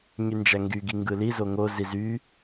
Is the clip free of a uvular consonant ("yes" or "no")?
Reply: yes